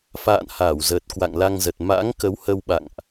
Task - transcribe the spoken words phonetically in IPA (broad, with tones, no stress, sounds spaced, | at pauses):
f a̰ː˧˨ n h aː˧˩ w z əː˨˩ t̚ k w a̰˧˨ ŋ l a˧ ŋ z ə˨˩ t̚ m a̰˧˥ ŋ k ə˨˦ w h ə˧ w ɓ a̰˧˨ ŋ ʔ